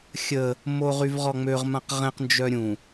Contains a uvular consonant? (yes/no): yes